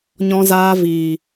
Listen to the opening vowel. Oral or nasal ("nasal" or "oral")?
nasal